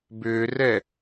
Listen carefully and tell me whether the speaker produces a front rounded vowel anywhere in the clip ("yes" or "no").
yes